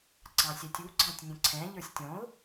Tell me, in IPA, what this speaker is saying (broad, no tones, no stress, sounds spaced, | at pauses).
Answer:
ǀ ɑ̃ sʲ æ tʲ u ɡ͡ǀ ɑ̃ tʲ nʲ ə̃ ǀʰ ɛ̃ ʎ ə˞ sʲ tʲ ɔ̃ ʊ̯